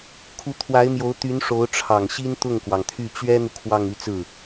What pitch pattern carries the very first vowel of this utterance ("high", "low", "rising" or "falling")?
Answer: rising